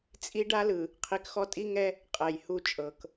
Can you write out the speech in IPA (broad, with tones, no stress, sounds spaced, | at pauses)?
t͡sʼ i˦ ɖ a˦ l ɯ˨ | qʰ i˨ k x ɔ˦ tʼ i˦ ŋ ɛ˦ | qʼ ɛ˨ j h u˦˨ t͡ʃʼ ɤ˨ k